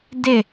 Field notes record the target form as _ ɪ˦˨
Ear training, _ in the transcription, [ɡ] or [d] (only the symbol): d